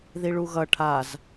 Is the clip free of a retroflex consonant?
no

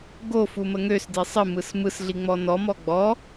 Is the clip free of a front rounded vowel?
no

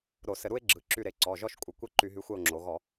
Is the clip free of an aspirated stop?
yes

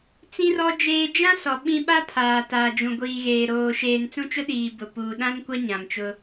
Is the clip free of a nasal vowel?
no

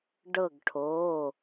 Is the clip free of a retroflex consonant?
no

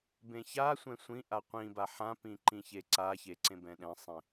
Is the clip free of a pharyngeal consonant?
no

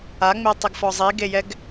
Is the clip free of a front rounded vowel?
yes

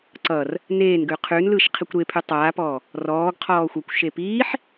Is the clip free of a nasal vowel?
yes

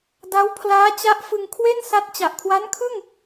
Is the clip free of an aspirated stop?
no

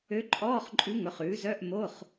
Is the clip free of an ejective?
no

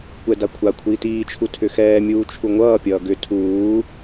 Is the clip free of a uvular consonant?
yes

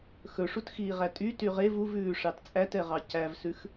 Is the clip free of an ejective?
no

